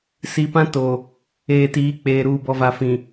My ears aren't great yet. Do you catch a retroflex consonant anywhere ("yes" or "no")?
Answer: no